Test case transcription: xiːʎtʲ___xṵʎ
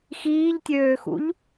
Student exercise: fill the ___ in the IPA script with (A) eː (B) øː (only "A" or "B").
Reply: B